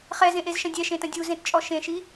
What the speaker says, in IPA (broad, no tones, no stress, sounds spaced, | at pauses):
χ ɛ z ẽ ʔ e z ʃ ɐ̃ dʲ ɛ ʃ ẽ t ɐ̃ dʲ u z ẽ t t͡ʃʼ ɔ ʃ ẽ ʃ i